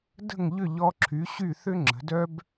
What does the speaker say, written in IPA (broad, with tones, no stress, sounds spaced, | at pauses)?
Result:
d ə̤˥˩ ŋ ʎ ʏ˥˩ ʎ ɔ˧ ǁʰ y˩˥ ɕ y˥˩ θ ʏ˥ ŋ͡ǁ ə̤˩˥ d œ˥ b